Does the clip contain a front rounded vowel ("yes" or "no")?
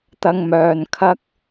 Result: yes